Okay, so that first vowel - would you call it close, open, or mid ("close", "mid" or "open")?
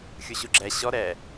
close